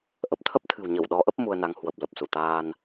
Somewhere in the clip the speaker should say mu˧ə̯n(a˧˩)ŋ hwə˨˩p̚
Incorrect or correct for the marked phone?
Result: incorrect: a˨˦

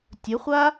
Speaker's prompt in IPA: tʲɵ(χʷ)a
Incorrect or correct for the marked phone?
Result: correct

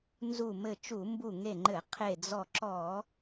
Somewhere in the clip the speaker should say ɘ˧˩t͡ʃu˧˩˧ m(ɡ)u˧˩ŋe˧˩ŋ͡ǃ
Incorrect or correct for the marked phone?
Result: incorrect: b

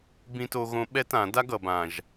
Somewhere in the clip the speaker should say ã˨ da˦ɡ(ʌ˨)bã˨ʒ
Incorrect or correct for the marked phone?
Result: correct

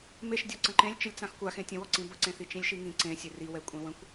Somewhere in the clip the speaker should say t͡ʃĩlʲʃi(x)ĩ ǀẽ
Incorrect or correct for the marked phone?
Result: incorrect: ŋ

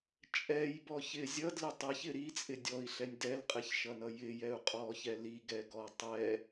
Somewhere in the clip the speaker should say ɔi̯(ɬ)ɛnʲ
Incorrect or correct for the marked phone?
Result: correct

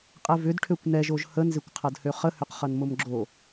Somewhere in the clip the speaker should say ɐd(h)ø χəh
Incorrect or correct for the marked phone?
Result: correct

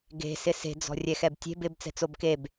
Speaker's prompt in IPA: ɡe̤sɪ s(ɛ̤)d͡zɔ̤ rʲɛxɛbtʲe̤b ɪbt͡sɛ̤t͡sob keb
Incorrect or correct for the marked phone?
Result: incorrect: e̤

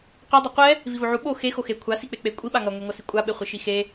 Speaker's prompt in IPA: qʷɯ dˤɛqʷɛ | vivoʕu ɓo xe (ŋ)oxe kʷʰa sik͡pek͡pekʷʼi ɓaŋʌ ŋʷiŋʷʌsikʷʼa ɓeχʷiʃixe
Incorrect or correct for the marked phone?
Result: incorrect: x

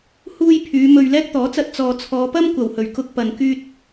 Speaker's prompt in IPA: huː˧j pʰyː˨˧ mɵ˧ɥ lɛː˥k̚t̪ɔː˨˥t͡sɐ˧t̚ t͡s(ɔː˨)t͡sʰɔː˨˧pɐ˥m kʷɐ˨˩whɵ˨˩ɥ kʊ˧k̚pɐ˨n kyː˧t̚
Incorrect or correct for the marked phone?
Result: correct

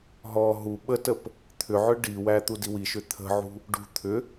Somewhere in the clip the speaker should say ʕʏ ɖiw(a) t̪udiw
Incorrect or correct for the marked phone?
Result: incorrect: æ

